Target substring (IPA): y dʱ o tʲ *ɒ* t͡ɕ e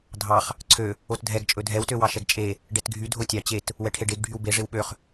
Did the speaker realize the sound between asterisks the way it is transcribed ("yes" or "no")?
no